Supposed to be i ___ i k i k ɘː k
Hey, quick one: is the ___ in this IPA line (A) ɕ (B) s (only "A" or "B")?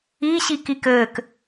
A